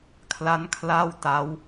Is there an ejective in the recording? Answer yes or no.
no